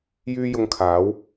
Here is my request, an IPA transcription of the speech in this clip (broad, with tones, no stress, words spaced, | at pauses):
jyː˥jʊ˧ŋ kʰaː˨˥w